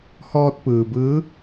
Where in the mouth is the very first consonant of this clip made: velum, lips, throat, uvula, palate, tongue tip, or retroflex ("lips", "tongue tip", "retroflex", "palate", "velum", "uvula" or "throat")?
throat